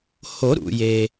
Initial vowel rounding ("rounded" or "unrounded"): rounded